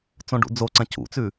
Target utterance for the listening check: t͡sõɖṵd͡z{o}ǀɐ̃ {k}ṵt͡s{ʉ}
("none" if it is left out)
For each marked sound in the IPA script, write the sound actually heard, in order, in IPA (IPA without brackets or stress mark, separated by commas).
o, c, ʉ